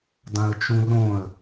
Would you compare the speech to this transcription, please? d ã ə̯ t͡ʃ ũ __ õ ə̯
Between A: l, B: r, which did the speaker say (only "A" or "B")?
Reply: B